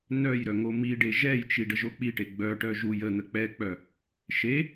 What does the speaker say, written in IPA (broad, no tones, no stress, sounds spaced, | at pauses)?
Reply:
n œ j ɾ œ ŋ o m i ɖ e ʒ ɛ j t͡ʃ i ɖ ə ʒ o k͡p i ʈ e ɡ͡b œ ʈ œ ʒ u j ə n̪ ə k͡p ɛ k͡p œ | ʃ e